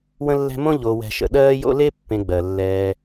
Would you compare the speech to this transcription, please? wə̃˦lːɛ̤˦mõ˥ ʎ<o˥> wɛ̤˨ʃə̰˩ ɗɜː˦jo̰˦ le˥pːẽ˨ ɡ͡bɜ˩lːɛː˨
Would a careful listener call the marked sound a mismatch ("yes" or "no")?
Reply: yes